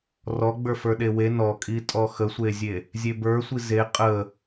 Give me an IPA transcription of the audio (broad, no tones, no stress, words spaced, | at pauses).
rɔ ɡ͡bə˞fə˞ɗewe nɔkʼitʼɔ xəsʷezʲe | zʲebə˞sʷi ze qʼə